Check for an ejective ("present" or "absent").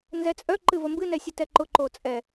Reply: present